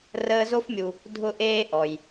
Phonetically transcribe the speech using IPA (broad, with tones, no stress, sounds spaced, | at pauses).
r əː˦ z o˥ f mʲ u˨ | dʱ ʊ˥ ʔ eː˥ ʔ ɔ˩ j